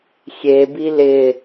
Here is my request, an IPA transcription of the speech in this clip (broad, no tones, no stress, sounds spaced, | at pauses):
xʲ e b i l ɪ